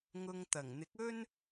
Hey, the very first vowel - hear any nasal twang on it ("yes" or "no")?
no